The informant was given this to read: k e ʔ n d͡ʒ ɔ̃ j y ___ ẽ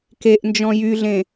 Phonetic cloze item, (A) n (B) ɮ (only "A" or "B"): B